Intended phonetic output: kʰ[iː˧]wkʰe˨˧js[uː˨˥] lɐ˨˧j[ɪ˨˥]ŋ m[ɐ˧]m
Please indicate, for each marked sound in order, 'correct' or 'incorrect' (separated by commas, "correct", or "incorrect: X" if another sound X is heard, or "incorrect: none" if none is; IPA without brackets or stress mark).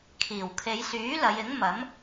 incorrect: iː˨˩, incorrect: yː˨˥, correct, incorrect: ɐ˨˥